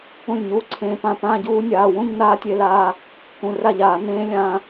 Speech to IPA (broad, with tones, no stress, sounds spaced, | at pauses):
ũ˥˩ lʲ ɲ uː˦˥ ǀʰ ẽː˧ p ã˥˩ p ãː˥˧ ɟ uː˦˥ nʲ aː˩˧˩ w ũ˥˧ ɲ n aː˦˥ tʲ e˧ l aː˧ | k ũ˩˧˩ r a˥˩ ʎ aː˧˩˧ n ẽː˦˥ lʲ ãː˧